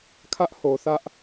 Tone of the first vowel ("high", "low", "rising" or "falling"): high